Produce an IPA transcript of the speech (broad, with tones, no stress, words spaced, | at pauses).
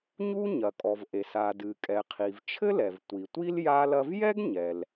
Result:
ɲu˥ɲɐ˩kʼɔ˩vʔe˩s a˩dɨ˩kʼɛ˩ qʰi˩vt͡ʃʰɘ˥lɛ˩v tʷi˩tʷi˥l ja˥lɐ˥v jɛ˥ɡɲɛ˩l